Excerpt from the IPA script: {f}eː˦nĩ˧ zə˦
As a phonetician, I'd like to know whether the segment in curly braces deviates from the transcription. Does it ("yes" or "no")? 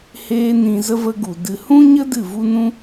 yes